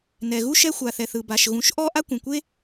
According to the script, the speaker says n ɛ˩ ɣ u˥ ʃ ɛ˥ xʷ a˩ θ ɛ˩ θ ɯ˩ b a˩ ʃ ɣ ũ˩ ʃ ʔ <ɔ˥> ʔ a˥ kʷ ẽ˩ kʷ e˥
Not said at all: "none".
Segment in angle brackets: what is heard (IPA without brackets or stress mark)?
ɔ˥